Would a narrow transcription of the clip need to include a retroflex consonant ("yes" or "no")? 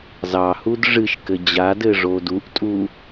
yes